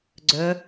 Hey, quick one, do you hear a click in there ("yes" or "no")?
yes